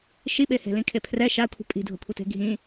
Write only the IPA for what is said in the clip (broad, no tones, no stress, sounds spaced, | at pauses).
ʃ i ɓ e h e̤ l ĩ kʰ e pʰ r ɛ ʃ a kʷʰ i̤ pʼ i̤ dʱ o̤ kʷʰ i t e̤ ɡʱ ĩ